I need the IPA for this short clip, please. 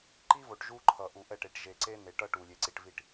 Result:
ǃ i˦ v o˨ ʈ ʒ u˦ ǃʰ ʌ˨ ʔ u˨ ʔ ɛ˦˨ ʈ e˨ ʈ ʒ e˨ ǀ e˦ n e˨˦ ʈ ʌ˦ ʈ u˨ lʲ e˨ ǀ i˨ ʈ v i˨ ʈ

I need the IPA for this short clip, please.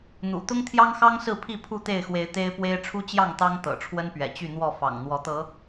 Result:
n̪ ṵ˨˩ t̪ ʊ˦ ŋ t̪ʰ j ɑ˦ ŋ x ɑ˦ ŋ s ɹ̩˥˨ pʰ i˥˨ pʰ u˥˨ t̪ e˥˨ ɪ̯ x w e˨˦ ɪ̯ t̪ e˦ ɪ̯ p w e˦ ɪ̯ ʈ͡ʂʰ u˦ t͡ɕ j ɑ˥˨ ŋ t̪ ɑ˦ ŋ t̪ ɤ̰˨˩ ʈ͡ʂʰ w ə˦ n p ɥ ɛ̰˨˩ t͡ɕ y˥˨ n̪ w ɔ˥˨ f ɑ̰˨˩ ŋ n̪ w ɔ˨˦ t̪ ɤ˨˦

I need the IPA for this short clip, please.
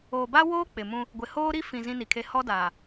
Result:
oː˨ b a˦ w oː˦ k͡p ɪ˨ m ũ˦ | ɡʷ ɪ˨ h oː˦ ɾ i˦ f ĩ˨ z ĩ˦ n i˨ kʰ e˦ h ɔ˦ d aː˨

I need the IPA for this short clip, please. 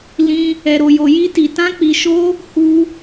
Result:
l ĩ˦ | ɛ˧ ɾ o˧ j o˧ j i˦ t i˧ t ã˦ k͡p i˧ ʃ o˦ | h u˦

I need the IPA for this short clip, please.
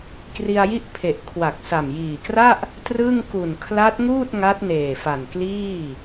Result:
k r i˧ a̯ j i˥˩ ʔ pʰ e˨˩ ʔ kʰ w a˨˩ k̚ s a˨˩ m j iː˨˩ k r a˥˩ ʔ | t r ɯ˥˩ ŋ k u˨˩ n kʰ l a˦˥ t̚ ŋ uː˥˩ t̚ ŋ a˦˥ t̚ n eː˨˩ f a˨˩ n k l iː˥˩

